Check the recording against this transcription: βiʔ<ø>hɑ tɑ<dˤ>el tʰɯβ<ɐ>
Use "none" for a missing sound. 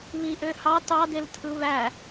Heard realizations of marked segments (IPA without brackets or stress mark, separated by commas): ø, d, æ